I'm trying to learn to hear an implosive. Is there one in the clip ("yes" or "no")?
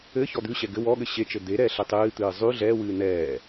yes